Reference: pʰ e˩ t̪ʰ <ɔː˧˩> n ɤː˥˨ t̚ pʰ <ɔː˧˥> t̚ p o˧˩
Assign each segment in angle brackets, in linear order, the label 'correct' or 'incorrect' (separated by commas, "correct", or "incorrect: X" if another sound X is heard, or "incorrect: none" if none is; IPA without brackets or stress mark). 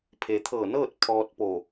incorrect: ɤː˧˩, incorrect: ɔː˧